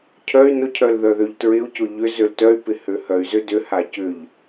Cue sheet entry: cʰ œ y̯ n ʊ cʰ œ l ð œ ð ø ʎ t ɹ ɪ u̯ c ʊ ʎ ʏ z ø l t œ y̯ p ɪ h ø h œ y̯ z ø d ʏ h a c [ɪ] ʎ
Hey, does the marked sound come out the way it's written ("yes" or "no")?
no